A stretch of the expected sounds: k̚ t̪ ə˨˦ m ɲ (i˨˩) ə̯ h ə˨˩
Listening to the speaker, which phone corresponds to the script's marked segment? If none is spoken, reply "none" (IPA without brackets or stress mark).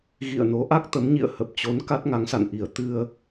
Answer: ḭ˧˨